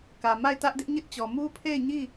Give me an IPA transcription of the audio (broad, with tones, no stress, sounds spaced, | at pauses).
k ä˨ m a˦˨ ɪ̯ t ä˦ ʔ d ɪ˦ ʔ ɲ ɪ˦ ʔ t͡ɕ ɔ˨ m u˦ pʰ e˦˨ ɪ̯ ɲ i˦˨